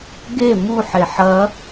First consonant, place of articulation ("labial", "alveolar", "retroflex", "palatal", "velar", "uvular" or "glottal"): velar